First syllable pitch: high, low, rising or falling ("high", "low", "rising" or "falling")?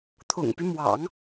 low